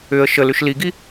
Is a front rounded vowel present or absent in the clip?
present